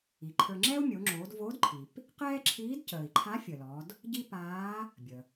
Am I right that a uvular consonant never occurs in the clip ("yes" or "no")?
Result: no